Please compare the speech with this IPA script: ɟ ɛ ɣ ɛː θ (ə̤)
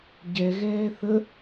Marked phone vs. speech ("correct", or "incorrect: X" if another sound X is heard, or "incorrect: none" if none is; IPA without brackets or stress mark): incorrect: ə